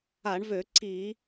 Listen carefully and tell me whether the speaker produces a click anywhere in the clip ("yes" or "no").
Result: yes